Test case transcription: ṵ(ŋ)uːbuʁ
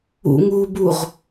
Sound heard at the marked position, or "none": ŋ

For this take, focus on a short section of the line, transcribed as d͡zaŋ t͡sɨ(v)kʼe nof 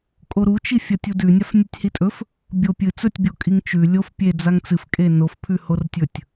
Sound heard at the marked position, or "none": f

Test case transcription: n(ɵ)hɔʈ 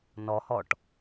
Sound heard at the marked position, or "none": ɔ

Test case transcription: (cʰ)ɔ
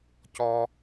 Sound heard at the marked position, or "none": c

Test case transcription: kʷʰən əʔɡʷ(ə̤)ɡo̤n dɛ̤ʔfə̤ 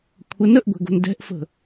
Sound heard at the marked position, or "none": ɛ̤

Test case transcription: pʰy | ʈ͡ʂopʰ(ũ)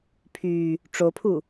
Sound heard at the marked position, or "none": u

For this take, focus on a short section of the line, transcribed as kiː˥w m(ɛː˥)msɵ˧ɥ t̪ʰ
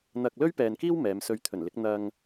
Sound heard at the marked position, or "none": ɛː˨˧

